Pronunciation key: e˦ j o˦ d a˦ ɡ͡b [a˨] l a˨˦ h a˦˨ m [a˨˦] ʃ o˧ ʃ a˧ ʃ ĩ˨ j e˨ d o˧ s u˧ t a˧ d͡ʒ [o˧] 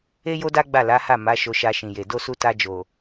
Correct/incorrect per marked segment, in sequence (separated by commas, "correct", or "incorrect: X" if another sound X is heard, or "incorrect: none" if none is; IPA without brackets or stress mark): incorrect: a˦˨, correct, incorrect: o˨